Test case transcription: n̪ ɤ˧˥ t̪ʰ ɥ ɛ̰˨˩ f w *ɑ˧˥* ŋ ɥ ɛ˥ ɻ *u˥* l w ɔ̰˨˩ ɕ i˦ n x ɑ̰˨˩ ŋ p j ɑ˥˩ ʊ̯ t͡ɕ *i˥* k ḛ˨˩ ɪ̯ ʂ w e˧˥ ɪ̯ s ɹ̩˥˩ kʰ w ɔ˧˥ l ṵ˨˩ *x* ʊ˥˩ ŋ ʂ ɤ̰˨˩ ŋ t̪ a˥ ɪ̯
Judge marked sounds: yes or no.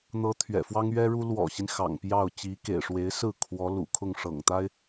no, yes, no, no

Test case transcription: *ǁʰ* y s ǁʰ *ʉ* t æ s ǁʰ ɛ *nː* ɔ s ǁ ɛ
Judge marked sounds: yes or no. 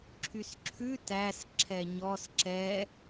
yes, yes, no

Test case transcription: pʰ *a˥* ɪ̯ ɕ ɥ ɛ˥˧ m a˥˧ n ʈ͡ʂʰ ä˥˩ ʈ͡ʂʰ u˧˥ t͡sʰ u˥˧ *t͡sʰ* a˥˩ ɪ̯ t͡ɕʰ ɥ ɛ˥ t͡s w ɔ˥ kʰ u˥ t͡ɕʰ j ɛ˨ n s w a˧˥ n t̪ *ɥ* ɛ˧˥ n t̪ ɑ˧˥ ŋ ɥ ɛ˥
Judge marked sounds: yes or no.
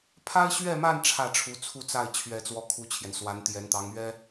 yes, no, no

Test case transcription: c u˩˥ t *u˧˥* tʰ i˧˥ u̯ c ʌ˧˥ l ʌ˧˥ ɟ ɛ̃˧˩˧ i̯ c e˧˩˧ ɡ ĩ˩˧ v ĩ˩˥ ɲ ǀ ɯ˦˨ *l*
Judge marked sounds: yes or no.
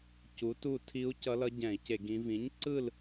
no, yes

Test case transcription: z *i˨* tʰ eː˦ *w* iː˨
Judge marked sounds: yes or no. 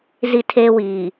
no, yes

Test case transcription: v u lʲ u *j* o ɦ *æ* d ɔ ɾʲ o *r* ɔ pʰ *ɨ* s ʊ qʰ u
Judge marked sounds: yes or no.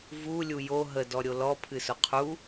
yes, no, no, yes

